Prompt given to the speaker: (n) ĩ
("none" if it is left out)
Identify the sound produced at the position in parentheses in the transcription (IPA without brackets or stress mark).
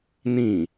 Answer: n